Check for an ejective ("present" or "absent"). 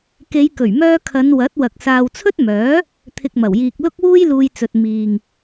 absent